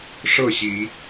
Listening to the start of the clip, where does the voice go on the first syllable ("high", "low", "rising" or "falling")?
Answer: falling